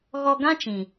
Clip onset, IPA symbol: ɣ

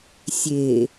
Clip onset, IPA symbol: sʲ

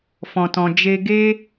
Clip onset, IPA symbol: f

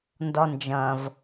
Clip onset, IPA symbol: n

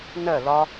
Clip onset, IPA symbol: n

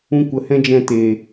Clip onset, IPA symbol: ũ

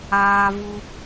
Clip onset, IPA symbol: aː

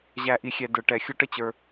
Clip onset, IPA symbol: ʑ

